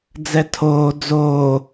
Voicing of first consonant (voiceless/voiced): voiced